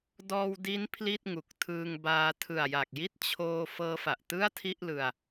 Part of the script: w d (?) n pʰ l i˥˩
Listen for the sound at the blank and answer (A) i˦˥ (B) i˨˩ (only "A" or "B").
A